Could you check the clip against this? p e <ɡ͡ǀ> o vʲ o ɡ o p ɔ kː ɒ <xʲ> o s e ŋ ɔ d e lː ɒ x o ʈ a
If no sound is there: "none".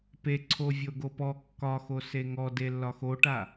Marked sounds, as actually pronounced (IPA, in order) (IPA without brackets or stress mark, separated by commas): ǀʰ, x